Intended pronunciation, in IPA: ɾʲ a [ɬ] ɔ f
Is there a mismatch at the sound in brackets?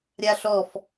no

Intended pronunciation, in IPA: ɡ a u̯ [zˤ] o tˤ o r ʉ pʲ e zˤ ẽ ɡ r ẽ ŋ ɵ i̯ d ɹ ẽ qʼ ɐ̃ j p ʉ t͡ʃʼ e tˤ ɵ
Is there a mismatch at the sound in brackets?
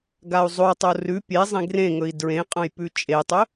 no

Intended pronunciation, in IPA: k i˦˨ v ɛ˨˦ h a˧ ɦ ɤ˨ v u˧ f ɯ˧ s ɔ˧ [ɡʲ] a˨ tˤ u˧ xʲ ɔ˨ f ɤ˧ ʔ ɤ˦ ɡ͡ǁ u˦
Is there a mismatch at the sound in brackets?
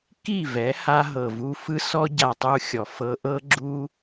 yes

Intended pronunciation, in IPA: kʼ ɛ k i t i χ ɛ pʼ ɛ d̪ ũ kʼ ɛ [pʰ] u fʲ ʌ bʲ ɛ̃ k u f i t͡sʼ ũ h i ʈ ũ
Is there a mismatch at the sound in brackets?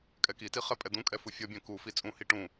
yes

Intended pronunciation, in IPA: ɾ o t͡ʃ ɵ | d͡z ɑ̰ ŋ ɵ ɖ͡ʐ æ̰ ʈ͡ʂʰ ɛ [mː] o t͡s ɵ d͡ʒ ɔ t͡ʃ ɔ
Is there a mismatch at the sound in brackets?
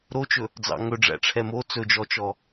yes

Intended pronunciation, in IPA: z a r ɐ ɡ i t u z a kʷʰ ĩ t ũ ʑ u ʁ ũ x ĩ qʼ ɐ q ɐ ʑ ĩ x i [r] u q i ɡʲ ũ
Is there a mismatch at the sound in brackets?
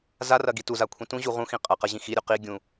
yes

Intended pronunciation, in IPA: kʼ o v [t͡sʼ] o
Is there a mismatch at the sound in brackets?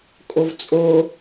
no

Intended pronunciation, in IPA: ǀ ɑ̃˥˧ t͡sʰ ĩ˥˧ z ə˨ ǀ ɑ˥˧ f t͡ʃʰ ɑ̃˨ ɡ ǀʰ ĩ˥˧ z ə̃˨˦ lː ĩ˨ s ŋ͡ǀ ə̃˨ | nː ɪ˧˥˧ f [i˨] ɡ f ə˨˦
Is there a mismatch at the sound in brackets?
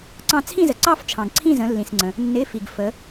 no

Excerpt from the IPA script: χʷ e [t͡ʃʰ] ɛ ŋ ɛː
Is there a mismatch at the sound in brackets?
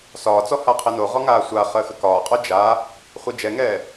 yes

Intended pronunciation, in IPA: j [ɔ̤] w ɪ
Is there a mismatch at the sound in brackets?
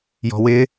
no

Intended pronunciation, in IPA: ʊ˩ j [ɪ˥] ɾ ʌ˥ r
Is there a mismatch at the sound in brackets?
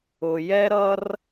yes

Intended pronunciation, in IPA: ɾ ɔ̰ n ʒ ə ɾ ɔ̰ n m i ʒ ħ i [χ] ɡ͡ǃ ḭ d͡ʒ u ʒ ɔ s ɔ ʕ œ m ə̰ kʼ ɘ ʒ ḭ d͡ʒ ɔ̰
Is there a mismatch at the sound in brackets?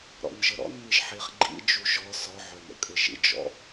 no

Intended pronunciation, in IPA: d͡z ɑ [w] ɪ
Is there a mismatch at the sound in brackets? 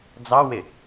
no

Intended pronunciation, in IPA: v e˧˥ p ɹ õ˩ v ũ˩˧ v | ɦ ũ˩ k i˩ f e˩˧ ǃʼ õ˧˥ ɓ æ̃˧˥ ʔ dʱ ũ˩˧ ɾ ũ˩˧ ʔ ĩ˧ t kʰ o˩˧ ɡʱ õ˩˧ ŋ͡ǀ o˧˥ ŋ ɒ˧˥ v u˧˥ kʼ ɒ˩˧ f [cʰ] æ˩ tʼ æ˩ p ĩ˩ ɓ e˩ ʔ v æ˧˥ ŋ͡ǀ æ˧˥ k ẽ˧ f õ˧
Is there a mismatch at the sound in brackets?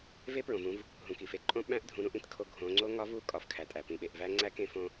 yes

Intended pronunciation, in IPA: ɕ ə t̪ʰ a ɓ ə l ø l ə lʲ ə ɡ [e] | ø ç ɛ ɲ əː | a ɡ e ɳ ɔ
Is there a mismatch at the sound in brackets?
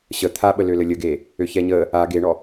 yes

